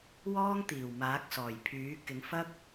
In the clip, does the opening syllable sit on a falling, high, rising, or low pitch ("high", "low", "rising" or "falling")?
high